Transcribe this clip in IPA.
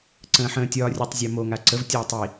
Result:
ǀ ə̃ː ħ ə̃ː tʲ ɒː rʲ ɵ tˤ zʲ a m o ŋ a ǀ ə v tʲ ɒː tˤ i

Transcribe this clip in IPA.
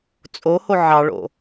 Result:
t͡sʼ o h o ʕ ɑ ɭ o̰

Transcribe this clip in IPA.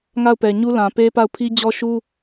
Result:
ŋ a˦˨ ʊ̯ p ɛ˨ ɲ u˦ l ã˨ p e˦ p a˦˨ ʊ̯ pʰ i˦ d͡ʑ ɔ˦ ʃ u˦

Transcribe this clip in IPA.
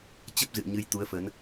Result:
t͡ɕ ə˦˥ p̚ z ɨ̰˧˨ ə̯ ɲ ɨ˧ j t̪ u˨˦ ə̯ f ə˨˦ n

